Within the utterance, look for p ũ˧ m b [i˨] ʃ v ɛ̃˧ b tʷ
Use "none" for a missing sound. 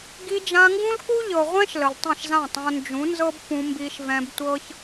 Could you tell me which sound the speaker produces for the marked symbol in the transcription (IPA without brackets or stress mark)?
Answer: i˧